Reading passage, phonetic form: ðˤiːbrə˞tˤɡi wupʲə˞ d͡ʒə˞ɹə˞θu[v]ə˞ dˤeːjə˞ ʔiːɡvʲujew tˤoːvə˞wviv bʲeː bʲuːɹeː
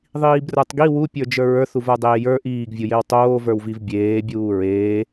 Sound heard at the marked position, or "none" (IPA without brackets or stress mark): v